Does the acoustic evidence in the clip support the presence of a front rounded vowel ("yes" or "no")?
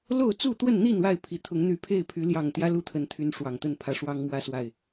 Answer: yes